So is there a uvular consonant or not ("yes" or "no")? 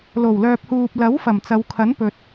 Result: no